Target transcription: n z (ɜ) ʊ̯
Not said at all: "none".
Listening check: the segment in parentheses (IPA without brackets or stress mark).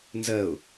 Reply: ɜ